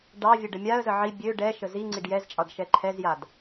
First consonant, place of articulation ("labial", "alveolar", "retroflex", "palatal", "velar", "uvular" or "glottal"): retroflex